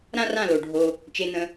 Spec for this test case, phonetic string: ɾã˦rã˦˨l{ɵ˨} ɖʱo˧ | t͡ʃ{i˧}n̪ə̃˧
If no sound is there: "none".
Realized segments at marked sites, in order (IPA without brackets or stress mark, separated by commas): o˨, e˧